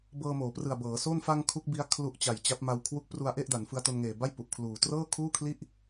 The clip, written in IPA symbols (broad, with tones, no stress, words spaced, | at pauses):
bɤː˧moː˩˦prɯ˨˩a̯ bɤː˩˦so˥˩n fa˧ŋ kʰu˦˥k̚ bi˦˥a̯ kʰlu˦˥ʔt͡ɕa˨˩jt͡ɕa˦˥p̚ma˧w kʰwu˦˥k̚pru˧a̯ʔe˥˩ʔ da˩˦nfɯ˧a̯to˧nŋeː˨˩ ba˥˩j pu˨˩ʔkʰluː˨˩ trɤː˥˩kʰuː˥˩kʰli˥˩ʔ